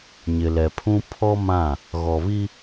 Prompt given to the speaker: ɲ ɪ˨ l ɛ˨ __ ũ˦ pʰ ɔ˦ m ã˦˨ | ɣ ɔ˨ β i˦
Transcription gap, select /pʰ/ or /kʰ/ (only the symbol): pʰ